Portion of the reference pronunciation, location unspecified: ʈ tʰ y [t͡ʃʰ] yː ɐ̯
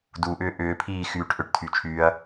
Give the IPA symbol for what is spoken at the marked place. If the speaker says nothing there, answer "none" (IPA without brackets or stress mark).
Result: t͡ʃʰ